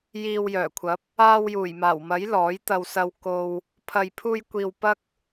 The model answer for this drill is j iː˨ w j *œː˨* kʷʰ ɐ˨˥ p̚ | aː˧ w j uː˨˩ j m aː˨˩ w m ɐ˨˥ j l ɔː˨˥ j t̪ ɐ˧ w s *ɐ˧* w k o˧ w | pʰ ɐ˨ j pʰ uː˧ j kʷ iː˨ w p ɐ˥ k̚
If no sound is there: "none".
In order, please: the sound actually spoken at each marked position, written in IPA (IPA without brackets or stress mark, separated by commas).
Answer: œː˨˩, ɐ˧